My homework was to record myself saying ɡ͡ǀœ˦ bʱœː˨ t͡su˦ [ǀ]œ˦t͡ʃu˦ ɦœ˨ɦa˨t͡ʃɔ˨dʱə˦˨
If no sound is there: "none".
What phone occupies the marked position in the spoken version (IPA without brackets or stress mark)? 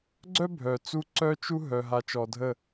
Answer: ǀ